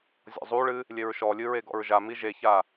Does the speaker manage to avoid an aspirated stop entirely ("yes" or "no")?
yes